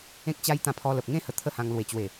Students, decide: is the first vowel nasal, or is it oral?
nasal